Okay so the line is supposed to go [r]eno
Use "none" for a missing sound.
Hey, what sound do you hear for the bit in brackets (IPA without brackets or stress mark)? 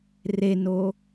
r